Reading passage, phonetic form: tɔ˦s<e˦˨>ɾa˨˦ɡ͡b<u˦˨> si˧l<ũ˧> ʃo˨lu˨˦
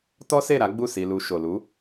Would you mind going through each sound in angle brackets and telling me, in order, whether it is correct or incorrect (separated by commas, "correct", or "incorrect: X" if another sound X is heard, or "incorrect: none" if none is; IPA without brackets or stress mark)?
correct, correct, incorrect: u˧